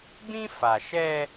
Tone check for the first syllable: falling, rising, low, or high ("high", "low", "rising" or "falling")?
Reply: high